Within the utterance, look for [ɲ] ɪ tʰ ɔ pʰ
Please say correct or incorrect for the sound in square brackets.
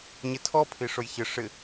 correct